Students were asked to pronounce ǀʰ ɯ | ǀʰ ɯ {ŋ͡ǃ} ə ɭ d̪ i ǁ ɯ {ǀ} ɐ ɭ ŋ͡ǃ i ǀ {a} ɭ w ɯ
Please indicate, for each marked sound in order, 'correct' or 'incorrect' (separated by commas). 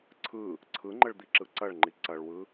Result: correct, correct, incorrect